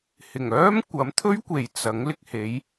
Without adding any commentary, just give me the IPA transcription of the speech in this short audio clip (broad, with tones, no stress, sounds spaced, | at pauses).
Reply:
h ɪ˨˩ ŋ œː˥ m kʷ ɐ˨˥ m t̪ʰ ɵ˥ ɥ kʷ e˨ j t͡s ɐ˨˥ ŋ l ɪ˧ k̚ h e˨˥ j